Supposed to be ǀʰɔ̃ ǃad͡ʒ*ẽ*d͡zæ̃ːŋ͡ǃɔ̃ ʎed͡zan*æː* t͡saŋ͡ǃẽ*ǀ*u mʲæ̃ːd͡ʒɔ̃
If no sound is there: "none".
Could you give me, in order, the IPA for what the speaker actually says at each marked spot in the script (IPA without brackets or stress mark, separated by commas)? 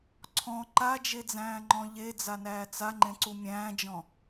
e, æː, ǀ